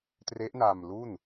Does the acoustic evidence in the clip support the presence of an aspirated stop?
no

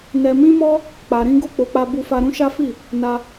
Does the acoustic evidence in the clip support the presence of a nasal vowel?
yes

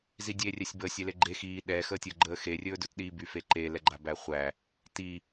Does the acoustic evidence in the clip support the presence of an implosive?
yes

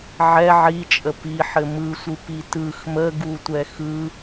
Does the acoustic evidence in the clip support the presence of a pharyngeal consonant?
yes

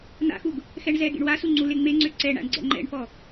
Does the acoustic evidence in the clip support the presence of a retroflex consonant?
yes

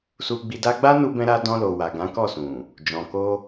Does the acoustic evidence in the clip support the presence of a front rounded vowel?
no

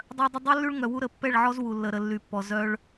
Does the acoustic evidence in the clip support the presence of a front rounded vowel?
yes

